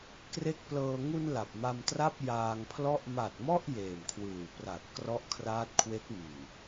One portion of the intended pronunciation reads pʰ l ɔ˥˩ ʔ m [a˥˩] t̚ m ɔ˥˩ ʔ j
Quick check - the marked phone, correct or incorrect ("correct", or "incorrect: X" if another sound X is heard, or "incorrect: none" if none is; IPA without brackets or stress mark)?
incorrect: a˨˩